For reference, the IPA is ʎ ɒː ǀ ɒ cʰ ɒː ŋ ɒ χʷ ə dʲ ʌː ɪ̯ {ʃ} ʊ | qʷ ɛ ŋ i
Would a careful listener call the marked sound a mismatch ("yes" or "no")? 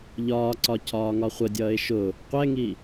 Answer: no